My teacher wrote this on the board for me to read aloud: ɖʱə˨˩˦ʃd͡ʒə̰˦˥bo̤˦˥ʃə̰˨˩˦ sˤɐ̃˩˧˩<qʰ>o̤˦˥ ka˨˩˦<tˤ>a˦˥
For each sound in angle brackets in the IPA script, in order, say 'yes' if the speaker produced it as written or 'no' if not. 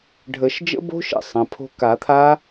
no, no

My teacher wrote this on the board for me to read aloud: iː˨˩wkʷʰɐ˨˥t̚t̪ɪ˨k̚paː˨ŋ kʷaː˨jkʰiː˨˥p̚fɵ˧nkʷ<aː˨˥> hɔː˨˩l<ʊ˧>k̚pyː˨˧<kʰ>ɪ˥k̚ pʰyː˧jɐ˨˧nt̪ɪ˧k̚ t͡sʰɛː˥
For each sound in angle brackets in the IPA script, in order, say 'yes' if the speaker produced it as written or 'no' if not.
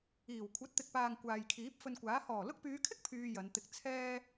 yes, yes, yes

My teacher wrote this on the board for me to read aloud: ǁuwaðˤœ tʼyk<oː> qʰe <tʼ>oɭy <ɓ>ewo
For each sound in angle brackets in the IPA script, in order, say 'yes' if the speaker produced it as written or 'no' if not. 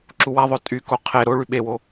no, no, yes

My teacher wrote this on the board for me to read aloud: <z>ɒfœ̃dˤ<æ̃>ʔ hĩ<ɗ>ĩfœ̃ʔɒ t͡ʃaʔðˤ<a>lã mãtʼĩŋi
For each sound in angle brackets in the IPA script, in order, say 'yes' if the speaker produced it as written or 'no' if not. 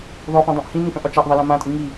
no, no, no, yes

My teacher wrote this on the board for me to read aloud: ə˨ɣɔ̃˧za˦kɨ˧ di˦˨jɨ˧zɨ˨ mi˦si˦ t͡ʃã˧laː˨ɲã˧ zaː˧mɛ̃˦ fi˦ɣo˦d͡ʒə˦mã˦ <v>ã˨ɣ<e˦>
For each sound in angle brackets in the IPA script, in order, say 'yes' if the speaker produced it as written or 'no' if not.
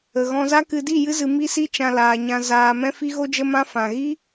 no, no

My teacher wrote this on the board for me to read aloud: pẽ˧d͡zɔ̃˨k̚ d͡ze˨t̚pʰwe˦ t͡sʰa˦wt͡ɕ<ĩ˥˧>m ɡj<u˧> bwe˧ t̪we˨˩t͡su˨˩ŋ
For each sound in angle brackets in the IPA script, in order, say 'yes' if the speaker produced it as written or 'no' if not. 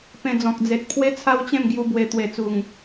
no, yes

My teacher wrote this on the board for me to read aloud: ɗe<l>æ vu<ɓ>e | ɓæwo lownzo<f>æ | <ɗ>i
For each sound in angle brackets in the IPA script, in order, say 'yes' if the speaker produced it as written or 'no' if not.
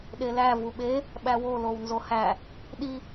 yes, yes, no, yes

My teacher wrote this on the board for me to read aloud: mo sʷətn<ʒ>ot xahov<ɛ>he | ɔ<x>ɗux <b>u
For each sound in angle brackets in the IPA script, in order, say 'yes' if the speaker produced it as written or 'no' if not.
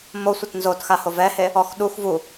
no, yes, yes, no

